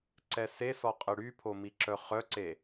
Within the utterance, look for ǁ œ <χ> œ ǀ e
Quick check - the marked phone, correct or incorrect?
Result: correct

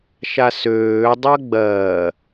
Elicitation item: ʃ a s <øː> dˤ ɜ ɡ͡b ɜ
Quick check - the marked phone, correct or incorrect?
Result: correct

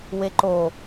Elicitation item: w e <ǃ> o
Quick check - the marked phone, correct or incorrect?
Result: correct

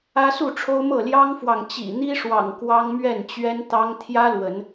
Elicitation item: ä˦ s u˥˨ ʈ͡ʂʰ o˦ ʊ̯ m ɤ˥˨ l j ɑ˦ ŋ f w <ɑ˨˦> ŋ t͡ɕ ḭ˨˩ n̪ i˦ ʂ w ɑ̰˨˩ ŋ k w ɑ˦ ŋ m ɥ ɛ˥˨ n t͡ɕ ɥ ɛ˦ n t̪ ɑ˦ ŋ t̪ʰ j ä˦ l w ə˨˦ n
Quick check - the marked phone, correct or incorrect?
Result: incorrect: ɑ˨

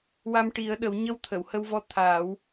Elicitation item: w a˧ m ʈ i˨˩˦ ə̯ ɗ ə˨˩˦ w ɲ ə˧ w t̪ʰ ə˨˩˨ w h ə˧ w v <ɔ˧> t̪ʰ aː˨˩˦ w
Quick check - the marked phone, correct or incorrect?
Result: correct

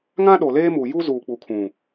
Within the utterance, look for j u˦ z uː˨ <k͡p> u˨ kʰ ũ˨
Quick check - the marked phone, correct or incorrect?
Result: correct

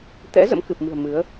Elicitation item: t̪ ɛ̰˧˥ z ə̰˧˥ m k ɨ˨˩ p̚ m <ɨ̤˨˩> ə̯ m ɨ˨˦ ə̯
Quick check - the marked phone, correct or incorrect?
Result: correct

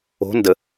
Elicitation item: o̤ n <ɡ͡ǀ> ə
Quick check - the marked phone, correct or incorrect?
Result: incorrect: d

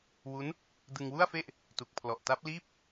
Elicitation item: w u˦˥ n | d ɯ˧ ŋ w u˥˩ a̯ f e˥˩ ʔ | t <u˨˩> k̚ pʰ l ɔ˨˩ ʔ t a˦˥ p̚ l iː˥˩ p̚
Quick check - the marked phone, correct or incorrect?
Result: correct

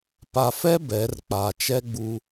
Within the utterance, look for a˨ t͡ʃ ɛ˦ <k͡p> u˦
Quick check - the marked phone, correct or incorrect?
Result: incorrect: ɡ͡b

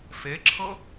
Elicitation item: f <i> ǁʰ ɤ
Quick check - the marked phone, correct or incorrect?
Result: incorrect: e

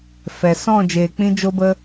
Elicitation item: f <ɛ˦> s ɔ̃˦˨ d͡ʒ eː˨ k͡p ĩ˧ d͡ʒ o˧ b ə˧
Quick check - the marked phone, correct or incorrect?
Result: incorrect: ɛ˨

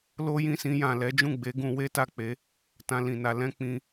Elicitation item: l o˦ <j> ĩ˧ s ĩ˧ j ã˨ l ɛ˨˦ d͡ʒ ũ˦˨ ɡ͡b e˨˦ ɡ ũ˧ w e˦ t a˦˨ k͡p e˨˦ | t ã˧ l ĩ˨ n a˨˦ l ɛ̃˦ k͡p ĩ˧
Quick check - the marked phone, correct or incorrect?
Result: correct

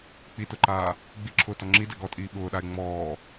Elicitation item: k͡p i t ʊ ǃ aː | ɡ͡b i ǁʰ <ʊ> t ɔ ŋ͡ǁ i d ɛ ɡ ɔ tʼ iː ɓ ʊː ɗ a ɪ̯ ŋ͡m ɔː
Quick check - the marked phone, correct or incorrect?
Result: incorrect: ʊː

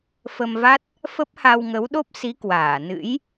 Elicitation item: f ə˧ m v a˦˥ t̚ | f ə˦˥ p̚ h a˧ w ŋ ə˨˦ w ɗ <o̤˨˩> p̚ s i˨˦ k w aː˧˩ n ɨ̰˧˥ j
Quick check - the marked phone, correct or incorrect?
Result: incorrect: o˦˥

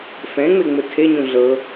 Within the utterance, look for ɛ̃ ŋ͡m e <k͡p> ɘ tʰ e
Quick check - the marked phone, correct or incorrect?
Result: incorrect: ŋ͡m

